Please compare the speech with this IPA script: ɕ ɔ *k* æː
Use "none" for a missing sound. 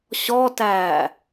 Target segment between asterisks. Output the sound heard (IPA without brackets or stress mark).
t